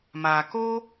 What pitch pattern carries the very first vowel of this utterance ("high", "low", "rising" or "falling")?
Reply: low